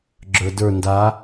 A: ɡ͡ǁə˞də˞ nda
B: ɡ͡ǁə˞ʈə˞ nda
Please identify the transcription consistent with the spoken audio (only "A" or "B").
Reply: A